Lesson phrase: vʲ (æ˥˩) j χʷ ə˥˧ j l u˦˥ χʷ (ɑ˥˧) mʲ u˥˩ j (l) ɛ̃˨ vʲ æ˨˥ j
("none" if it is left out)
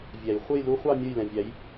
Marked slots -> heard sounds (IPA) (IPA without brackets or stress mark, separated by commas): æ˨˩˦, ɑ˥˧, l